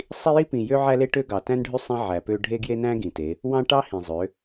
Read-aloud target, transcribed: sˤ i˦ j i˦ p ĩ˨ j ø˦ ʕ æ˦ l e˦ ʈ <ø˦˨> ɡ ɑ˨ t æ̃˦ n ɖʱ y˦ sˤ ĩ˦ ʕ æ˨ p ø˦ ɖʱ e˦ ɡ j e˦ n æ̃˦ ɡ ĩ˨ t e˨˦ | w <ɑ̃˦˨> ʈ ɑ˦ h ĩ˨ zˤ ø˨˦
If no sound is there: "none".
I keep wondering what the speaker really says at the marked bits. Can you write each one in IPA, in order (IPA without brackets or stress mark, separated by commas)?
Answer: ø˦, ɑ̃˦